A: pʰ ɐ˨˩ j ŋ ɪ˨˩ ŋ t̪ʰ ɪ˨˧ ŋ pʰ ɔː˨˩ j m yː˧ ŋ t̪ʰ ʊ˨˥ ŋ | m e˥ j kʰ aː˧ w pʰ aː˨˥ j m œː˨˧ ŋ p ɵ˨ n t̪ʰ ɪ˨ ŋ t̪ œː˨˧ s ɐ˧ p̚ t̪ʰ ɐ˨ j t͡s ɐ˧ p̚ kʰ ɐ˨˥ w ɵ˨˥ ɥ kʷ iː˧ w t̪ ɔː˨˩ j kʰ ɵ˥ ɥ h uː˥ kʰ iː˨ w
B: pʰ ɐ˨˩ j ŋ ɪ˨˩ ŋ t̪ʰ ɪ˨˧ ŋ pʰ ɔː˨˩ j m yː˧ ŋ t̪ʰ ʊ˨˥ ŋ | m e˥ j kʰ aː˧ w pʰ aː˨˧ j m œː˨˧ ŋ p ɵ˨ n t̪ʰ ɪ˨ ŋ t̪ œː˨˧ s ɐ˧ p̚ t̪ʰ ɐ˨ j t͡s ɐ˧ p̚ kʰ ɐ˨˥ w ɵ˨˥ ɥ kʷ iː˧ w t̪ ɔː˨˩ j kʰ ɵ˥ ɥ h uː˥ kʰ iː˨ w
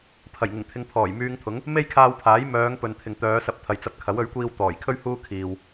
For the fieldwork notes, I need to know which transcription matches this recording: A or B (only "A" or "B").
A